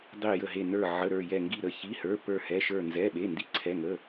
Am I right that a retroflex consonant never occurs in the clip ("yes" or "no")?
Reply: yes